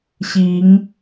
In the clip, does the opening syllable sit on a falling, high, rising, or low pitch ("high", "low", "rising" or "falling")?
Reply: rising